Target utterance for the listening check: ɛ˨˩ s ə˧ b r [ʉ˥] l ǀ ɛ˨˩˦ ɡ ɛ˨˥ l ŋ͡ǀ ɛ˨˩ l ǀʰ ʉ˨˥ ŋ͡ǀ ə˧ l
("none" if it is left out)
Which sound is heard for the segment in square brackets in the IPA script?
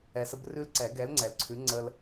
ʉ˥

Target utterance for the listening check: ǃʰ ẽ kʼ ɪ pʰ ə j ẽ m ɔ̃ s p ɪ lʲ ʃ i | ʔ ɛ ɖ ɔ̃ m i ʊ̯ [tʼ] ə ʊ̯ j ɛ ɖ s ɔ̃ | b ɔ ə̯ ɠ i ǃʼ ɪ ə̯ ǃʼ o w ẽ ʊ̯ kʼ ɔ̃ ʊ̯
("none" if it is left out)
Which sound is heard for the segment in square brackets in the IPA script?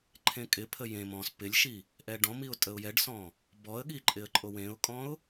tʼ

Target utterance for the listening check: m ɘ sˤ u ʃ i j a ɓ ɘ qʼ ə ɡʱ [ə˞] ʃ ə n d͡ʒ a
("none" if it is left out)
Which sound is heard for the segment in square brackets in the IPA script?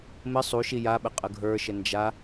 ə˞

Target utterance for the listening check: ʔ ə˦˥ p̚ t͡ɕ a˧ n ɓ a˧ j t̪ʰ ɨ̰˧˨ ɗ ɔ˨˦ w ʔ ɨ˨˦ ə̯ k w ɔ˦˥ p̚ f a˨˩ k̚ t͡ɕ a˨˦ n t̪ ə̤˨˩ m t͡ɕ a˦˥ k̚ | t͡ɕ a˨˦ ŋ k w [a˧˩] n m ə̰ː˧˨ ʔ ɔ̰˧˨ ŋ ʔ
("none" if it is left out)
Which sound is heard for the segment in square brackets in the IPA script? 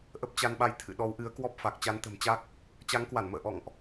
a˧˩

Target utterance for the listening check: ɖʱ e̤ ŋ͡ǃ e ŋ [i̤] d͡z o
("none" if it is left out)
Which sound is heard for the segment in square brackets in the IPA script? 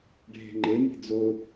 i̤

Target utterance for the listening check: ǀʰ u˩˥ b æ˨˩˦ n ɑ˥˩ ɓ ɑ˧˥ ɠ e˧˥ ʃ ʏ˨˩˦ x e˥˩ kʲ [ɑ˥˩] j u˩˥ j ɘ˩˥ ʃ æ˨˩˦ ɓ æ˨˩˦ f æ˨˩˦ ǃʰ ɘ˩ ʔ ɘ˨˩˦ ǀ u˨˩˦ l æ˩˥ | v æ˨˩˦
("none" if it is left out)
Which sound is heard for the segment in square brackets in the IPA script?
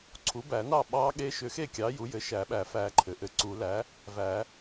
ɑ˩˥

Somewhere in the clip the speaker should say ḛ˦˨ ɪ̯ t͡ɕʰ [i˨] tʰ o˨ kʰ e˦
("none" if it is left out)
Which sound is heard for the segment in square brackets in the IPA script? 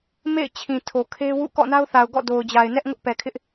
ĩ˨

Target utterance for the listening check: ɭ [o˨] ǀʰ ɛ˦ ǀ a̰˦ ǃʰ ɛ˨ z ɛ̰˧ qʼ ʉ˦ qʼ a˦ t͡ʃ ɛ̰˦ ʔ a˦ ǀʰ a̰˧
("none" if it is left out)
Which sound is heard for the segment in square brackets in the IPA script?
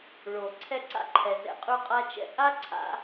o˨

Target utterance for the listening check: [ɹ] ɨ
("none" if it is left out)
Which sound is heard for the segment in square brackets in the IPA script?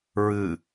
ɹ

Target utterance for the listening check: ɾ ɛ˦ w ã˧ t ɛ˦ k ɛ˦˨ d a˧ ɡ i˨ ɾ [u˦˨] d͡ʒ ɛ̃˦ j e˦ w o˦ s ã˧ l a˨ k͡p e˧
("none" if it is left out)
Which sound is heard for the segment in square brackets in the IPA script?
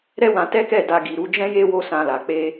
u˧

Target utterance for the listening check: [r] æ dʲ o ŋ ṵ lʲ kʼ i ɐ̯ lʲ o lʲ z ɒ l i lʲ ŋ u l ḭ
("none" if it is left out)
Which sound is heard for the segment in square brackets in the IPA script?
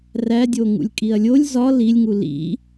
r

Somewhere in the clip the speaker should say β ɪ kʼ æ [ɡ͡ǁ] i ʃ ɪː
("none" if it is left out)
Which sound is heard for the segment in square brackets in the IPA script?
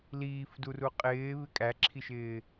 ǁʰ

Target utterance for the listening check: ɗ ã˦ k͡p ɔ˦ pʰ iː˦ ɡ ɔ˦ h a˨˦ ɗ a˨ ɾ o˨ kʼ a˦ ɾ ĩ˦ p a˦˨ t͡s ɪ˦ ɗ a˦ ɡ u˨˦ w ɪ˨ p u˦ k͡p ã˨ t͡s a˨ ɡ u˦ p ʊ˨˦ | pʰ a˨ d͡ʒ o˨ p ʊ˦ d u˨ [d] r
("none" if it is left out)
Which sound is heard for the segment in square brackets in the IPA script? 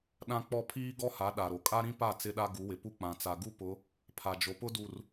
none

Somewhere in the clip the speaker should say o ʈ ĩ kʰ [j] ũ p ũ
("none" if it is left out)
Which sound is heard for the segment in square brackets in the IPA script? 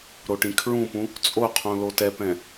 ɹ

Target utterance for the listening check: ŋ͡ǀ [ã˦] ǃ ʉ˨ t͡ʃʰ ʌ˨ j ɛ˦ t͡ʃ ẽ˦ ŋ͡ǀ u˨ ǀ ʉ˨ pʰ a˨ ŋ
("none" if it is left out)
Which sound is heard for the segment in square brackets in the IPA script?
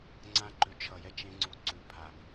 ã˦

